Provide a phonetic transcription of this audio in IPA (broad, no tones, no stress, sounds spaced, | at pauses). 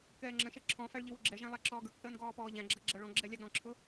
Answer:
k ɛː ŋ͡ǁ ə̃ ʃ ɛ ǁʰ ɔ̃ f æ ɭ ʎ ɪ w ʊ ɡ͡ǁ ɛ ʒ æ̃ lˠ æ ǁ ɔː ɡ ə˞ k θ əː n ɡ ɔː p ɔː ʎ æ̃ ɡ͡ǁ ʌ ɡ͡ǁ ʌ ɭ ɔ̃ ɡ͡ǁ ɛ lʲ ɑ ɡ ɾ ɔ̃ ǁʰ ʊ